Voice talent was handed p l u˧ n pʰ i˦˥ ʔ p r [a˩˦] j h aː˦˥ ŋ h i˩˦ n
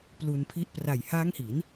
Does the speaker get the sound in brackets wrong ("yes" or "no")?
yes